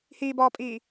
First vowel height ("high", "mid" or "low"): high